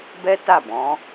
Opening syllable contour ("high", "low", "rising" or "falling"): high